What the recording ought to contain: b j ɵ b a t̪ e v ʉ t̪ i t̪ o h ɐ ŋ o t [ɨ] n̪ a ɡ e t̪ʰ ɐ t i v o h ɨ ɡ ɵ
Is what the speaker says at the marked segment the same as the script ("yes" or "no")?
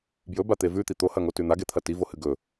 no